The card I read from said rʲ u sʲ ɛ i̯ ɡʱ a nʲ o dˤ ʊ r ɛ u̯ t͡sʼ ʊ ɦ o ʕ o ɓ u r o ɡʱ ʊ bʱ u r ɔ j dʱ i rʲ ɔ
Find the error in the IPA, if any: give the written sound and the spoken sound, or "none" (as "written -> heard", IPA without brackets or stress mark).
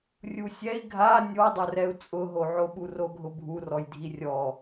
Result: none